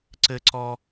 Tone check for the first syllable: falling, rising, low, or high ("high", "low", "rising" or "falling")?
high